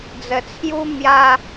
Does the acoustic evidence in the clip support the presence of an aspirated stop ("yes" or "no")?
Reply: yes